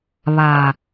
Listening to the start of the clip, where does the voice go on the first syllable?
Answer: low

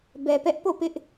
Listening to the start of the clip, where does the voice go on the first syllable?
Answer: low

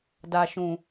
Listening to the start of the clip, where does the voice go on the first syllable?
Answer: low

